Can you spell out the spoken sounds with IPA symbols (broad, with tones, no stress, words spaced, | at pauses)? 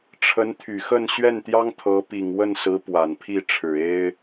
ʈ͡ʂʰə˧˥nt̪ʰy˨˩xə˥˧n ɕɥɛ˥˩nt̪jɑ˥ŋt̪ʰɤ˧˥ pi˨˩ŋwə˥˩nsɹ̩˧˥ pwa˨˩npʰi˥˩ ʈ͡ʂʰɻ̩˨˩e˥ɪ̯